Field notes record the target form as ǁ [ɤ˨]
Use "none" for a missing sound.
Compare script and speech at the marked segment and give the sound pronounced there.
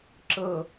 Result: ɤ˨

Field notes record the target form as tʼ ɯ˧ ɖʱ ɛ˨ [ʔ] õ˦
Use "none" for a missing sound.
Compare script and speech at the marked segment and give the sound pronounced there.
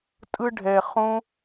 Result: χ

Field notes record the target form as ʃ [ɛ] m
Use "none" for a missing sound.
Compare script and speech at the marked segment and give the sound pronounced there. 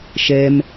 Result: ɛ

